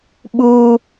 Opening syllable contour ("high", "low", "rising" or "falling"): high